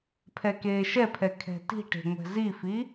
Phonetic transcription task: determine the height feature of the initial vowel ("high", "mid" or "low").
mid